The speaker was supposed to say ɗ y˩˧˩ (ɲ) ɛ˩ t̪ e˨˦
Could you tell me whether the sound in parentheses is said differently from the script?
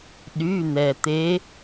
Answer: yes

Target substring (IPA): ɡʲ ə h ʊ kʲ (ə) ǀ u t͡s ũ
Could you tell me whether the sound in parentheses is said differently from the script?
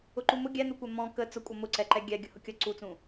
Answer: no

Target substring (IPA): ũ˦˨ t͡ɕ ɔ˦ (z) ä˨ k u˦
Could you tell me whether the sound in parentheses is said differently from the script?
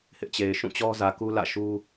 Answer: no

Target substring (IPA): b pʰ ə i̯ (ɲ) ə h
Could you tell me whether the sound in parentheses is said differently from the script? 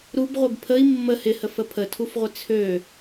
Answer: yes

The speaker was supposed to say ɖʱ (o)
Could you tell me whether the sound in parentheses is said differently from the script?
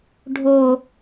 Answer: no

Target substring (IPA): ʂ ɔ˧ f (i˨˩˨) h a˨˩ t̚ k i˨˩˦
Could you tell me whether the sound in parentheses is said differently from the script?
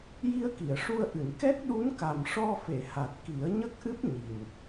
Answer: yes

